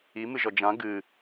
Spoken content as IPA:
imɨʒɔ d͡ʒã ɡɨ

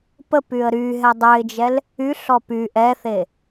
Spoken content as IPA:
pəpyə̯ ɾy ɦɛdˤøɪ̯d͡ʒɛl | yɬɔ py ʔɛθe

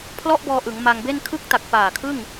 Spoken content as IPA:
pʰlɔ˥˩ʔbɔː˧ ʔɯ˩˦ŋma˧ŋbe˥˩n kʰɯ˥˩k̚ta˨˩k̚ paː˨˩kʰɯ˥˩ŋ

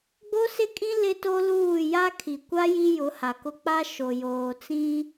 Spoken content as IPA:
ɡ͡bo˦sɪ˦kʼĩ˦ lɪ˦to˦luː˦˨ ja˦kʰi˨kʷa˦ ji˦jʊ˨˦ha˨kʊ˦ k͡pa˦ ʃo˨joː˨t͡sĩ˦

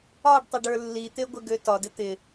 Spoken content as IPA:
ɒɖtˤɪɖə˞ lːit̪eɡʷɪɡø tɒdɪ t̪ɪ

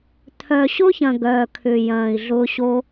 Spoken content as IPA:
t̪ʰœ˨ɕʊ˦çɐ̃˨ ɡœː˨kʰʏ˨ jɐ̃ː˨i̯ɮʊ˧ɕo˧

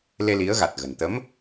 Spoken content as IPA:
le˧ li˨˦ə̯ɣa˨˩t̚ɣə̤˨˩n t̪ə˨˦m

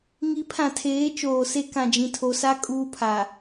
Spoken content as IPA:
ŋi˨˦pʰã˨tʰeː˨˦ t͡ʃoː˨se˦ kã˨d͡ʒĩ˨tʰo˨sa˦ kʼuː˦pʰa˨

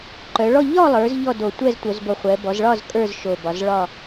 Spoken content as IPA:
ǃœ˩˧ɭɔ˥˧ ʎɒ˥˧lˠə˞˩˧z ʎɔ˥˧ do˨˩ tʷɛ˥˧ztʷœ˩˧zbo˨˩χʷɛ˩˧ bɔ˩˧zɭɒ˥˧z kʼə˞˥˧zʃo˨˩bɒ˩˧zɭɒ˥˧

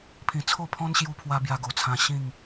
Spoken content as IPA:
pʰĩ˨˩t͡sʰo˥˧pʰɔ̃˦n ɕju˧pʰwa˧ bja˧ɡo˨˩t͡sʰã˧ ɕĩ˥˧ŋ

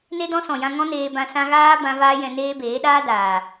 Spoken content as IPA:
ne˦dɔ̃˦sɔ̃˨jã˧ ŋɔ̃˦neː˧bã˧ sã˧ɣaː˦bã˧ vaː˦jɛ̃˧neː˦beː˨˦ ɗaː˦ daː˨

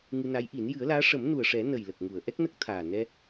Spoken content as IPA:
ŋɨ˧na˧˥jʔi˨˩˦n jɨ˨˩˦ə̯laː˧˥ ʂə˨˩˦m nu˨˩ə̯ʂɛ˨˩˦ nə˨˩j lə˨˩k̚ŋu˨˩˨ə̯ ʔɛ˦˥k̚nə˦˥k̚t̪ʰaː˨˩ nɛ˧

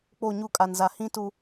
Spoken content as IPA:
k͡po˦˨ɲu˦kʼa˨nza˨ hĩ˦tu˨

